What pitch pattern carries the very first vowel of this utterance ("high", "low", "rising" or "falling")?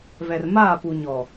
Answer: low